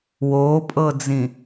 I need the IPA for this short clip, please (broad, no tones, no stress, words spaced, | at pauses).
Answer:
woːpʼɤd͡zĩ